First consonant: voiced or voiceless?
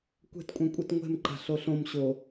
voiceless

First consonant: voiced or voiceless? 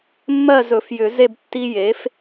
voiced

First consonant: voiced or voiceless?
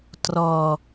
voiceless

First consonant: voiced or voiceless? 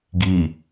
voiced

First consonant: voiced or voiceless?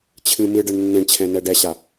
voiceless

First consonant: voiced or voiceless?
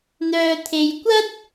voiced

